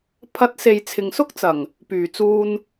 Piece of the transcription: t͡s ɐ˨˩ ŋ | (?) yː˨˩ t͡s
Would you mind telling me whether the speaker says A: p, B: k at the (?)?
A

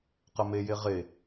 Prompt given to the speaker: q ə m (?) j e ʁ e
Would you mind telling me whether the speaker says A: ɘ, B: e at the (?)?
B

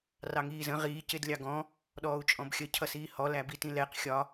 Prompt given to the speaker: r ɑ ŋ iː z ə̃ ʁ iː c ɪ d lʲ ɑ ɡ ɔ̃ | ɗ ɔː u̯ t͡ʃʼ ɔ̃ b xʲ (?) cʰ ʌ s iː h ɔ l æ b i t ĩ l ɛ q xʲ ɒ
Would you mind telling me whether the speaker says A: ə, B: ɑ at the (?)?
A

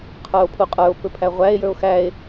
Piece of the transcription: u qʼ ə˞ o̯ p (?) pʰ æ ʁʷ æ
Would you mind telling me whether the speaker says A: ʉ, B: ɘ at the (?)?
B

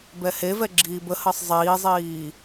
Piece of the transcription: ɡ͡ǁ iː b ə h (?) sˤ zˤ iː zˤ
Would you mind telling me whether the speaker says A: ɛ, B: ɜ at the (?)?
B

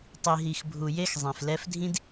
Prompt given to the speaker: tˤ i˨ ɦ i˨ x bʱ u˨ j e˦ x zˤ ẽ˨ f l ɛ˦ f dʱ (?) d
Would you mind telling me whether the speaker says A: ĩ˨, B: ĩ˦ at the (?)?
B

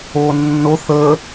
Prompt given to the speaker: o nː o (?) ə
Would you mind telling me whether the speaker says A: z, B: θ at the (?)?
B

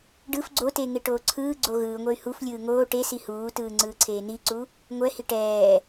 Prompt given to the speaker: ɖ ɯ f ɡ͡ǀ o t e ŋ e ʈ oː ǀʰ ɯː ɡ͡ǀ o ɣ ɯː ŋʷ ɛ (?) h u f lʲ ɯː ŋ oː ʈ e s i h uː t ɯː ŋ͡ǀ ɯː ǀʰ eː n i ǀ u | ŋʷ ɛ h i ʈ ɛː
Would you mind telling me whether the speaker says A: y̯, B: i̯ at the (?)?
A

